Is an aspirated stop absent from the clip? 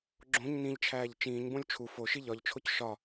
no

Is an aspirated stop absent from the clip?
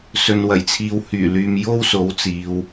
no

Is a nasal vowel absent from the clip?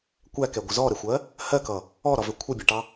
yes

